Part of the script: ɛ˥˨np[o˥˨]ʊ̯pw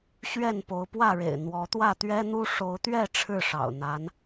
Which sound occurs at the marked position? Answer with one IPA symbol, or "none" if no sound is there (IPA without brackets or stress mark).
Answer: o˨˦